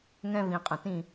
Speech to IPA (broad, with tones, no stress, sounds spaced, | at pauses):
ŋ ɛ̃˥ v ĩ˧ qʼ ə̃˧˩ t ĩ˥˧